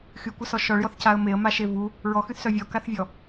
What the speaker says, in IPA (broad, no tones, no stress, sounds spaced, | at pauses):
x y kʷ ə s ɔ ʃ ɔ ɭ j ɔ θ c a ə̯ m e ə̯ m a ʃ e v u | ɹ ɔ x y θ s œ vʲ ɔ k a θ vʲ ɔ